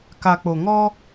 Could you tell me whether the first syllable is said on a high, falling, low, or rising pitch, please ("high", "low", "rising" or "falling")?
low